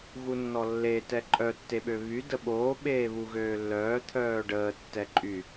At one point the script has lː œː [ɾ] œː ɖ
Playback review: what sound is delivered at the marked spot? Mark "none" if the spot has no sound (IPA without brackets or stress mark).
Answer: t̪ʰ